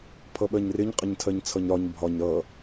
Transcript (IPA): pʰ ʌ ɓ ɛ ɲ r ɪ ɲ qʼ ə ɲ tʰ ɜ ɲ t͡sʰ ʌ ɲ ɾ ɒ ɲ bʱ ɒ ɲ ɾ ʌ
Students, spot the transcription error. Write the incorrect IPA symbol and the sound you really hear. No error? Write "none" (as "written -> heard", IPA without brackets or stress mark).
ɛ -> ɜ